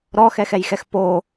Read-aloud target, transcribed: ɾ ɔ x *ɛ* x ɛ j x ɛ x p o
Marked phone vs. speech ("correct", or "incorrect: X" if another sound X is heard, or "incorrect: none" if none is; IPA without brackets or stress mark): correct